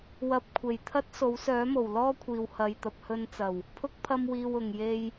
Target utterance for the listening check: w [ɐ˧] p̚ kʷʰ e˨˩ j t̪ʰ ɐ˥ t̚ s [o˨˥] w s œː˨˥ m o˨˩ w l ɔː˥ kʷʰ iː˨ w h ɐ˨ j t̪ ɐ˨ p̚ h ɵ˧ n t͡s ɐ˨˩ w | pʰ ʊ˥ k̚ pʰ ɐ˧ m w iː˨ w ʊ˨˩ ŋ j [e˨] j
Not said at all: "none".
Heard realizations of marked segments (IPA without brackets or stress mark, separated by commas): ɐ˧, o˨˥, e˧